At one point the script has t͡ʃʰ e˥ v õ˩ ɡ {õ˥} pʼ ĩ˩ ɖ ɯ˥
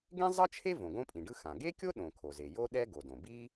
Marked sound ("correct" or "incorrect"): correct